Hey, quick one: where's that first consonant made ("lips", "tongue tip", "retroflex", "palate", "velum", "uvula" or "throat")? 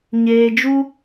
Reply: palate